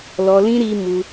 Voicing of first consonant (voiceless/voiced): voiced